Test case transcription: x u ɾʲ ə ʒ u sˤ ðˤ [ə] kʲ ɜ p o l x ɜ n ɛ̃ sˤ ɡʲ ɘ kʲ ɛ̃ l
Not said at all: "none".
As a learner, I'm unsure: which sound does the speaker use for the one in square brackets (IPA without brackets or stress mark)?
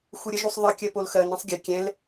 ə